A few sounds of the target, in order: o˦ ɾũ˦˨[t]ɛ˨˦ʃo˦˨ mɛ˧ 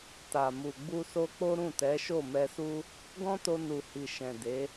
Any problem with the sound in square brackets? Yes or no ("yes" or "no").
no